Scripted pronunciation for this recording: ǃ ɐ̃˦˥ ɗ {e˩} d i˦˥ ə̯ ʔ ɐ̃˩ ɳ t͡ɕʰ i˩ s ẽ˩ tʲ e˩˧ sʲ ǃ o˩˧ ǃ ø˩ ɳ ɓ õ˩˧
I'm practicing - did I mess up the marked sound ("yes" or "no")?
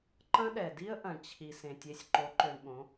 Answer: yes